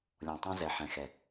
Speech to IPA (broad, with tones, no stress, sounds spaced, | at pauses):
lʲ ɔ̃˧˩ tˤ ã˥ z ɛ˧˩ ħ ɛ̃˧˩ x ɛ˧˩